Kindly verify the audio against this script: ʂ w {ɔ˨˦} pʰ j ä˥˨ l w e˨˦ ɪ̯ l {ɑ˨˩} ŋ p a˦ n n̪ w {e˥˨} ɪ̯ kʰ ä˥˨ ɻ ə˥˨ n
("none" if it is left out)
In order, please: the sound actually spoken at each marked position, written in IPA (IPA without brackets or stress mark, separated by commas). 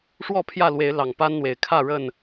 ɔ˥˨, ɑ˨˩, e˨˩